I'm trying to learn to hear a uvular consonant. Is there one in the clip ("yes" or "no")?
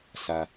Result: no